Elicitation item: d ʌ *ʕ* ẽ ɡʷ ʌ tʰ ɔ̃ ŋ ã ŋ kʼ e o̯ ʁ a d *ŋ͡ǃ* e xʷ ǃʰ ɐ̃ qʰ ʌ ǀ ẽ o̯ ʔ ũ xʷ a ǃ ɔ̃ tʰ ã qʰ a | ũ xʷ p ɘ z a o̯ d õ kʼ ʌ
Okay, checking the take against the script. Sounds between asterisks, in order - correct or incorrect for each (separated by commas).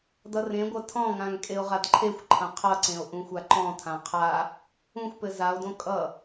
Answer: incorrect, incorrect